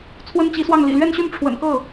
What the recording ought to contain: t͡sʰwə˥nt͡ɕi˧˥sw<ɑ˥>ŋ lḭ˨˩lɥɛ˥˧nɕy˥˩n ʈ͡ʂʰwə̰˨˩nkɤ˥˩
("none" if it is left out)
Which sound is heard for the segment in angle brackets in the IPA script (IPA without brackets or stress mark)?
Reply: ɑ˥˩